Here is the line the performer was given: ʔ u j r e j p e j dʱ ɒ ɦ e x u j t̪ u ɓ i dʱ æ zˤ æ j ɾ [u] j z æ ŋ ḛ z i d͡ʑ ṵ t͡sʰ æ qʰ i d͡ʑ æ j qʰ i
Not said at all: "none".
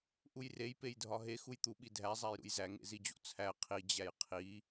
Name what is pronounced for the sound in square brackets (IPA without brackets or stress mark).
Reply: ṵ